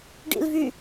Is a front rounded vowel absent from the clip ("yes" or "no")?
no